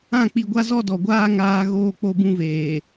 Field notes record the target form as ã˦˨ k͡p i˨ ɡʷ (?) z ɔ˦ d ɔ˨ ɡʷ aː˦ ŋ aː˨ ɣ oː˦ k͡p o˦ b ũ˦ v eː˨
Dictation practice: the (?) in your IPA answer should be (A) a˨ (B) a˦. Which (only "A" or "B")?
B